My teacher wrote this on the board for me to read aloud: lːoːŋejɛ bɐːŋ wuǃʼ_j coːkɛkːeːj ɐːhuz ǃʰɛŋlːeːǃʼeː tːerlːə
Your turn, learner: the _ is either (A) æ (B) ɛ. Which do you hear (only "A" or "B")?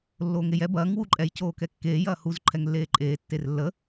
B